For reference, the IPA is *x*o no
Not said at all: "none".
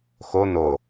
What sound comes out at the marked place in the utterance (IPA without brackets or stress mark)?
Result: x